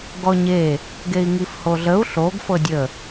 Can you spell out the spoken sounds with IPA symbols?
ɡ ɔ ɲ e | ɡ e i̯ ŋ i f h o ɮ ə u̯ ɬ o ɡ f ɤ dʲ ə

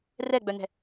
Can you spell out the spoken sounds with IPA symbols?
r ɛ ɡ͡b œ n ɛ̤

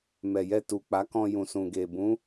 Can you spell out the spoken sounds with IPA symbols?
m ɛ˨ j ɛ˧ t u˨ k͡p a˨˦ k ɔ̃˧ j ũ˨ s ũ˨ ɡ e˨ b ũ˨˦

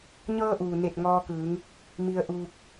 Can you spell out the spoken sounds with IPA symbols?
ɲ ɤː˧ ʔ uː˩ n e˧˩ t̚ ŋ ɔː˧ k ɯː˩˧ ŋ | m i˧ ə̯ ʔ uː˧ k̚

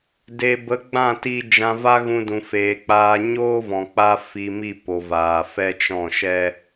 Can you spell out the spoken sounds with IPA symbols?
d e˨ b ə˨˦ ɡ͡b ã˦˨ t i˧ d͡ʒ ã˧ v a˦ ɣ ũ˧ d ũ˨ f eː˨ k͡p aː˧ ɲ oː˦ v ɔ̃˨ k͡p a˦ f i˧ m i˦˨ p o˨ v aː˨ f ɛ˦ t͡ʃ ɔ̃˦˨ ʃ ɛ˦

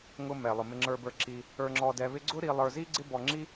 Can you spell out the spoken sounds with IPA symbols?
ŋ ʊ˧ m ɛ˩ lˠ ʊ˩ m ɪ˧ ŋ͡ǁ ə˞˧ b ə˞˧ ǁ i˧ | ə˞˧ ŋ͡ǁ ɔ˧ d ɛ˧ β ɪ˥ ɡ͡ǀ ʊ˥ ɾ i˧ lˠ ə˞˧ z i˥ ɡ͡ǀ ɪ˥ b ɔ˧ ŋ͡ǁ i˥

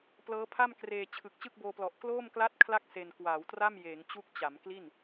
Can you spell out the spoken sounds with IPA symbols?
p l ɤː˦˥ pʰ a˥˩ m k r eː˧ t͡ɕʰ ɯ˨˩ k̚ t͡ɕ ɯ˥˩ k̚ b oː˧ p l ɔ˨˩ ʔ k l oː˥˩ m k l a˥˩ t̚ kʰ l a˥˩ k̚ s e˧ n k w aː˩˦ w t r a˥˩ m j eː˩˦ ŋ t͡ɕ u˦˥ k̚ t͡ɕ a˩˦ m k l i˥˩ n

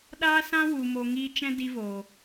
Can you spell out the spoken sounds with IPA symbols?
ɗ aː˦ s ã˦ w u˨ m o˧ ŋ iː˦ t͡ʃ ɛ̃˦ d i˦ v oː˨

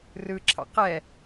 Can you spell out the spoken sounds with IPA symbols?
r ɯ ǁʰ ɑ̰ q ɛ

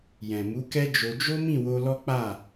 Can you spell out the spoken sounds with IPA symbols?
j ɛ̃˨ m u˨˦ k ɛ˦ d͡ʒ o˧ d͡ʒ o˦ m ĩ˦˨ w o˧ l ɔ˦ k͡p a˦˨

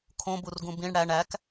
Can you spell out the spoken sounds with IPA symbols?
kʰ õ b u r ɡ ũ b ĩ ɳ ɽ æ ɳ æ k

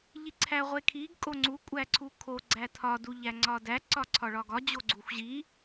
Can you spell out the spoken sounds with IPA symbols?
ʎ i ǀʰ æ ʁʷ e kʰ i ɡ kʼ o ŋ͡ǀ u kʷʼ æ ǀʰ u kʰ o ɡ͡ǀ æ tʰ ɒ d u ʎ æ ŋ͡ǀ ɒ d æ ǀ ɒ ǀʰ ɒ ɭ ɒ ɡ ɒ d͡ʑ o ɡ͡ǀ u xʷ ʑ i

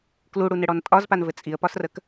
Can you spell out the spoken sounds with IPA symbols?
k l u ɽ u n ɘ ɽ ɔ n tʼ ɒ z p a n v ɘ t͡sʼ i ə̯ p ɒ s r ə k

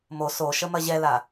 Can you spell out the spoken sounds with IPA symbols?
m o s o ʃ ə m ɐ ʑ ɛ l a

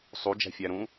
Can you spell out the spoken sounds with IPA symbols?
sˤ u d͡ʒ æ̤ fʲ æ ɾ ũ

